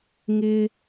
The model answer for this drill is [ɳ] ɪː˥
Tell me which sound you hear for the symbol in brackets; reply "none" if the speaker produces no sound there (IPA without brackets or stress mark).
ŋ